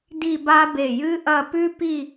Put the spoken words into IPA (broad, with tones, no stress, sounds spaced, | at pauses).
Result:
d i˥˧ b a˥ b e˧˩ j ɨ˥ ʔ ɐ˥˧ p ʉ˥ p i˥˧